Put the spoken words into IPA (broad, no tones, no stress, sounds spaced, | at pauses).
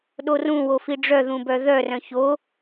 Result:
ɗ o r ũ w o f i ɖ͡ʐ œ ð ũ b œ ð œ r œ̃ ç o